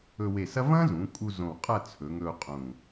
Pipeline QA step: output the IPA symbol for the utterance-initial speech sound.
ɵ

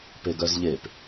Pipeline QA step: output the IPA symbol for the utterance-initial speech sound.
p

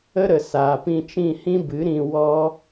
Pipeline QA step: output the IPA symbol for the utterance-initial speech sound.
ə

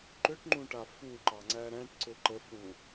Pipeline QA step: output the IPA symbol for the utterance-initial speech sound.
ǃ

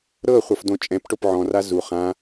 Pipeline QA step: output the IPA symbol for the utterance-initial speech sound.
ɾ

